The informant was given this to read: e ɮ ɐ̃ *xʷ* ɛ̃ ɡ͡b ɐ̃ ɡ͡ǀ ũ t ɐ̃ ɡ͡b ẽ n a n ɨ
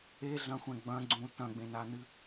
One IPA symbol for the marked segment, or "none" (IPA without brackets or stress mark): xʷ